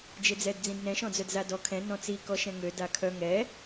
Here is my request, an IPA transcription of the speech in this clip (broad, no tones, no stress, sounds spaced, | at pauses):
d͡ʒ e d͡z ɛ d d͡z ĩ d n ɛ̃ ʃ ɔ̃ d͡z œ d z a d ɔ kʰ ɛ̃ n ɔ̃ t͡s i k ɔ ʃ ɛ̃ ŋ ø d a kʰ œ ŋ ɛ